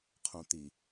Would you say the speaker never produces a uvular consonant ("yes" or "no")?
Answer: no